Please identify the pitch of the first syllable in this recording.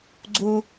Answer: high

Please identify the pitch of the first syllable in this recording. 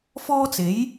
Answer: high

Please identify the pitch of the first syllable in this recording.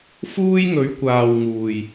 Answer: high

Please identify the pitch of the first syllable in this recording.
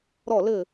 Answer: falling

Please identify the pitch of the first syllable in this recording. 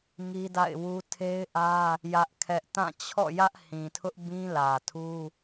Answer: high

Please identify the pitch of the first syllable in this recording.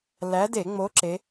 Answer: rising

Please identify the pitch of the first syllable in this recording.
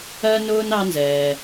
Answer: high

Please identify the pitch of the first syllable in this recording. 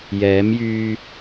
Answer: rising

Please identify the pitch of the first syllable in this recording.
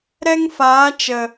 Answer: high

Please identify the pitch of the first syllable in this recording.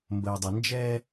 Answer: low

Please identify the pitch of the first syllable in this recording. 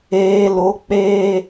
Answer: low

